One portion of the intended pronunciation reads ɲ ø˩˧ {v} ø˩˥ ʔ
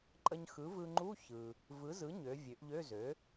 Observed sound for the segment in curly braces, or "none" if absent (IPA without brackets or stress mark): vʲ